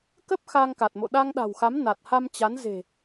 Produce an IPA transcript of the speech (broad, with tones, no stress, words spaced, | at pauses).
kə˦˥p̚ xaː˧ŋka˨˩t̚mo̰˧˨ ɗa˧ŋɗa̤˨˩wxa˨˦m na˨˩t̚ha˧mt͡ɕa˨˦nze̤˨˩